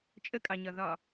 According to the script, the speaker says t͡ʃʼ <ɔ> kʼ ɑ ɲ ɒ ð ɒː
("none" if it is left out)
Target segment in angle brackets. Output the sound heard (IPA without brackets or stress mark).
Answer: ə